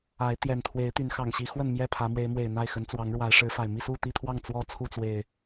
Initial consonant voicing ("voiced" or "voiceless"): voiceless